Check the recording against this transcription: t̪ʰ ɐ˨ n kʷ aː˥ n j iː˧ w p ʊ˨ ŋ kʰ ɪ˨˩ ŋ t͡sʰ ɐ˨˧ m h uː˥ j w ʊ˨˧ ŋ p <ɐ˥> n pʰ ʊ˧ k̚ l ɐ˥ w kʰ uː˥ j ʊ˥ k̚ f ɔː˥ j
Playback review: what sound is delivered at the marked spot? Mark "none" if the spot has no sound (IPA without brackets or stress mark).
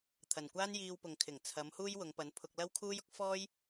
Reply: ɐ˨˧